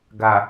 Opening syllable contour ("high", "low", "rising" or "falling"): low